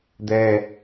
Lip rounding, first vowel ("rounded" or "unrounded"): unrounded